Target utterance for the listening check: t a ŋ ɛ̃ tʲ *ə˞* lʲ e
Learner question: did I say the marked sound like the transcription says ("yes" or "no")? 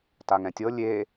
no